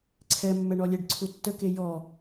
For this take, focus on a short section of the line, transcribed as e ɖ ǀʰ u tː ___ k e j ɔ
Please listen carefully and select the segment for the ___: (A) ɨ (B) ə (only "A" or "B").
B